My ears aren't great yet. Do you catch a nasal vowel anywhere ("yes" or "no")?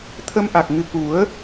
no